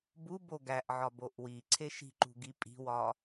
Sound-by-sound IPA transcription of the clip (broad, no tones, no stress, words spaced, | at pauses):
bubo ɡæʔʕɒ boʔwiǀʰe ʃi̤ǃṳ ɡipʼi̤wɒ